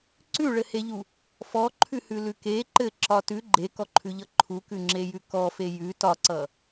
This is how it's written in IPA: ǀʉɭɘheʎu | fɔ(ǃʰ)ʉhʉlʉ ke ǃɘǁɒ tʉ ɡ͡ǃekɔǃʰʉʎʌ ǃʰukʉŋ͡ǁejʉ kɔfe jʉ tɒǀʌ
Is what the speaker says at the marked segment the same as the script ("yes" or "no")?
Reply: yes